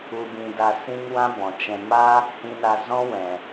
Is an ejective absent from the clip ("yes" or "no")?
yes